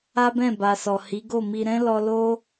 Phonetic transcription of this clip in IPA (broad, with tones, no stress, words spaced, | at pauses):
a˦bɛ̃˦˨ba˨ sɔ˨hi˨˦ ɡo˦˨mi˧ ɾɛ̃˦lɔ˧ lo˦